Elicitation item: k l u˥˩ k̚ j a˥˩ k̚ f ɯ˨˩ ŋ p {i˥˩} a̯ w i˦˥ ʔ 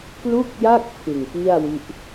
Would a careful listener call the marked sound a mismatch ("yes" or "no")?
no